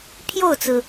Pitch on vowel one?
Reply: falling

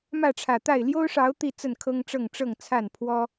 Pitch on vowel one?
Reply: falling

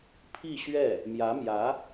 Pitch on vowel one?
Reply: falling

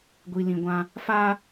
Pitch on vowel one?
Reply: low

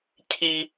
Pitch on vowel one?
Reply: high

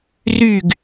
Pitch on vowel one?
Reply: falling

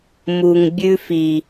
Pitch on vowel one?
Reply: low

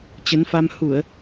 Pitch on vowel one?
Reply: rising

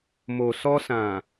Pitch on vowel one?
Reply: low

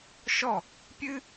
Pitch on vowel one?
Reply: falling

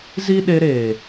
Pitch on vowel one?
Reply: high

